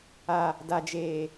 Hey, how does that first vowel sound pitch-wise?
low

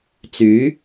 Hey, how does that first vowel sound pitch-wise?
rising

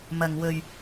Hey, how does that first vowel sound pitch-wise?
low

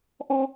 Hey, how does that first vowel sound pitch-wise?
high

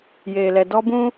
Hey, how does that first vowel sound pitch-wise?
low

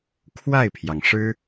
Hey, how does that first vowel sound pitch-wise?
falling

